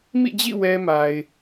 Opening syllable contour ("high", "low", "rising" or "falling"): falling